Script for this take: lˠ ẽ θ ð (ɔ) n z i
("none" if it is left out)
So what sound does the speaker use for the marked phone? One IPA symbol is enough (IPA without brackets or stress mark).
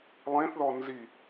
ɔ